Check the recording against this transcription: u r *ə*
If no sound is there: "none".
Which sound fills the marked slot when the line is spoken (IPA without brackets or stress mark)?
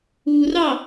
ɑ